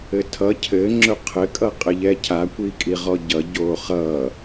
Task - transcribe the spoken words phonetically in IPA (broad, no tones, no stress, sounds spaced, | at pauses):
ɘ tʰ ʌ cʰ ɘ ŋ͡ǁ ɵ qʰ ɘ kʼ ʌ qʼ ɘ ʎ ɛ cʰ a kʷ i kʼ i ʁ ɔ ɟ ʌ ɟ oː χ ʌː